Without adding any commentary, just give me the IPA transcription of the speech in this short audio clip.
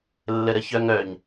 lː ə ɾ ə ç œ ŋ œ ɲ

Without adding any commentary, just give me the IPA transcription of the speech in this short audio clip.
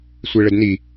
sʷ e ɭ ə d n i

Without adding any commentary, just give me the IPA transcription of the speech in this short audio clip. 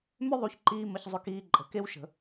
m ʏ˦ ðˤ u˧ ç ǃ iː˧ m ə˧ ç zˤ ʏ˧ k iː˧ ǃʼ ə̤˨˦ k e˦ w ʃ ə̤˧

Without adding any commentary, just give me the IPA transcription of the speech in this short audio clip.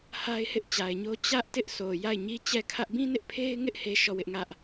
h a˦ ɪ̯ h ɪ˦ ʔ t͡ɕ a˨ ɪ̯ ɲ o˦ t͡ɕ ä˦ ʔ t ɪ˦ ʔ sʰ o˨ j a˦˨ ɪ̯ ɲ i˦ t͡ɕ ɛ˦˨ kʰ ä˦ ʔ b ĩ˦ n ɪ˦ ʔ pʰ e˦ ɪ̯ ŋ ɪ˦ ʔ h e˦ ʃ ɔ˦˨ w ɪ˦ ʔ ŋ ä˦ ʔ

